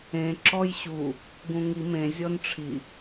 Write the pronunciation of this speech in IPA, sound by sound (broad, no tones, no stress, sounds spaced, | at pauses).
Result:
ẽ ǁ ɔ j ɕ u | ɡ ũ ŋ i m ẽ zʲ ɔ n ʈ͡ʂʰ i